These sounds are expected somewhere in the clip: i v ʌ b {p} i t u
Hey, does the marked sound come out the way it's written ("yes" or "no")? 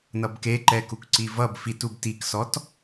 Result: no